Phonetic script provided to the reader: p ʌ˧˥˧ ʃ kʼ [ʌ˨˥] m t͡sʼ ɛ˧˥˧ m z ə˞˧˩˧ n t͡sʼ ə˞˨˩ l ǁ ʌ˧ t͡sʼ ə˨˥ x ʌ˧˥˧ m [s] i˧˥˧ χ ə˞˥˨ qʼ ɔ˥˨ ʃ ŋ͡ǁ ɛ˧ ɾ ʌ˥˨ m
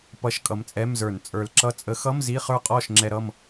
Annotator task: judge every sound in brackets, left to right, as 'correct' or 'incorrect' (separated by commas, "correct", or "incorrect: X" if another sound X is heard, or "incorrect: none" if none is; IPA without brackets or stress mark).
correct, incorrect: z